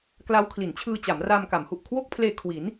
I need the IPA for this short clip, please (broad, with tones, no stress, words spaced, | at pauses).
kla˦˥wkʰli˩˦nt͡ɕʰɯː˧ t͡ɕa˩˦mraː˧mka˩˦m hu˨˩ʔkʰwo˥˩k̚pʰleː˧ kʰwi˩˦n